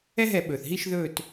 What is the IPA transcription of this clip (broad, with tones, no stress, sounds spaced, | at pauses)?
ɛ˦ ɦ ɛ˧˩˧ ɓ ɵː˩ θ ɦ i˦˨ ʃ ð ɵː˦˨ t